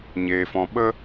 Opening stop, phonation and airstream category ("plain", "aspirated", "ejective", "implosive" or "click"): implosive